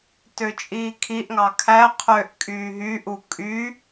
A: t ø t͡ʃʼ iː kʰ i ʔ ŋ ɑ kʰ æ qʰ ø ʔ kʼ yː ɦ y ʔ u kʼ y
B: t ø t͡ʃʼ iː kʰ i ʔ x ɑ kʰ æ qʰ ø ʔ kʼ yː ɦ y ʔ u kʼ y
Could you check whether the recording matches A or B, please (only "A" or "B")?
A